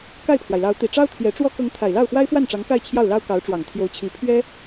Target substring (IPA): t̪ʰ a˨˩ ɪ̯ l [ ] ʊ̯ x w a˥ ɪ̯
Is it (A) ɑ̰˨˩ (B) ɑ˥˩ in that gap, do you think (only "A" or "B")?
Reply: B